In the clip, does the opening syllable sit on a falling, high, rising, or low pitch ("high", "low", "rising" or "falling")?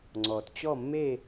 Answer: low